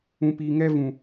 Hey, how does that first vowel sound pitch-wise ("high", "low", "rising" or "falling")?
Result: low